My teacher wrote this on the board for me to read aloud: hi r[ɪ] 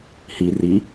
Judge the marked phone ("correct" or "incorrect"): incorrect